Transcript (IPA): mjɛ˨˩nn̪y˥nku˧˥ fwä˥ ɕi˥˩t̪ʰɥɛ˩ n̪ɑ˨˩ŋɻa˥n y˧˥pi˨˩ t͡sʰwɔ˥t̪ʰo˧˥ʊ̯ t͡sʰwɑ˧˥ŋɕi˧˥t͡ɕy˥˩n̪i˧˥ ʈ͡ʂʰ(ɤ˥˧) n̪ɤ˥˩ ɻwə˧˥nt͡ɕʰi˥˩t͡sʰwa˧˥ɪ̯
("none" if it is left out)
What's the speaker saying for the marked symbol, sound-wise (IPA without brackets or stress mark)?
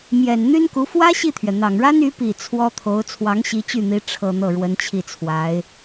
ɤ˥˧